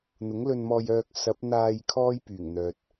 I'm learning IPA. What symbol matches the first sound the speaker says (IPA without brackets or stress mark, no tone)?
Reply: n̪